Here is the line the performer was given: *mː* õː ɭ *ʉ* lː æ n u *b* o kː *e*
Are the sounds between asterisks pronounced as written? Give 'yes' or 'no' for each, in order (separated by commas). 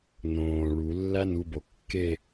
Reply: no, no, yes, yes